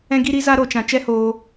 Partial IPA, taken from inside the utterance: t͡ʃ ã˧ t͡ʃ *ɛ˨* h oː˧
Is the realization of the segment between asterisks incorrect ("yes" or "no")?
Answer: yes